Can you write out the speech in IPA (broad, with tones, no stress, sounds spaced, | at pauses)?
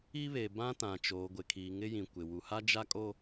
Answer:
i˦ β e˨ b ã˦ t ã˨ t͡ʃ oː˨ ɡʷ ɪ˨ kʰ iː˨ ŋ ɪ˦ j ĩ˨ kʷ ɪ˨ w u˨ h a˦ d͡ʒ a˦ kʼ o˦